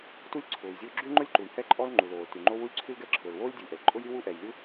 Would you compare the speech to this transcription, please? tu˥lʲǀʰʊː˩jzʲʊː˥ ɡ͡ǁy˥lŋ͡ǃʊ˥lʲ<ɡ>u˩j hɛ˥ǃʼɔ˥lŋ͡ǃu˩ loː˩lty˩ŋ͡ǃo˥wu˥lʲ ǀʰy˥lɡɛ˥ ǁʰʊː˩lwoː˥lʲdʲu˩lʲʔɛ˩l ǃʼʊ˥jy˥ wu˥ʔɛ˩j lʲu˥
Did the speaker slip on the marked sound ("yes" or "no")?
yes